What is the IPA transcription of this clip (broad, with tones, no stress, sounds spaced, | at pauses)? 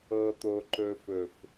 ɤ˧ t̪ o˧ ǃ ɵ˧ f ɵ˨ f